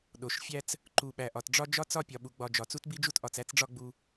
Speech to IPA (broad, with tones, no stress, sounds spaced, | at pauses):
ɗ o˨ ʃ fʲ æ˦ t͡s | ǃ u˨ ɓ æ˨ ʔ ɒ˨ t ɖ͡ʐ ɒ˦ d͡ʒ ɒ˦ t͡s ɒ˦ pʲ ɒ˨ ɓ u˨ ɡ͡b ɒ˨ d͡ʒ ɒ˨ t͡s u˦ t b i˦ d͡ʒ u˦ t ʔ ɒ˨ t͡s æ˦ t͡s ɖ͡ʐ ɒ˦ ɡ͡b u˦